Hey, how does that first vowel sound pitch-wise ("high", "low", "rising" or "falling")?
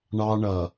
high